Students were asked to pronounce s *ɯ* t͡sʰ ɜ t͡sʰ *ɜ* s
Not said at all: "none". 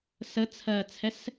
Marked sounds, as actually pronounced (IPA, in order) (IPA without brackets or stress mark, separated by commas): ə, ɛ